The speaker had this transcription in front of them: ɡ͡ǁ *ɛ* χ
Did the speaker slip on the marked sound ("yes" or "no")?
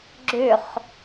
yes